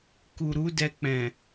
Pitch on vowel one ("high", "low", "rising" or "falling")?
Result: low